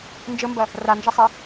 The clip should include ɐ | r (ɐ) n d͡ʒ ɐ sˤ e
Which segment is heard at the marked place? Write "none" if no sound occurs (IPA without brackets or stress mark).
a